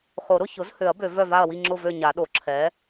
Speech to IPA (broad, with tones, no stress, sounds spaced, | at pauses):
χ o˨˩˦ ɾ ʊ˥˨ ç ʊ˩˥ z h ø˨˩˦ ɐ̯ b ø˨˩˦ v œ˥˨ v a˥˨ ɐ̯ w i˥˨ ŋ͡ǁ ʊ˥˨ v ø˥˨ ɲ a˨˩˦ ɗ o˨˩˦ ǁʰ ɛ˩˥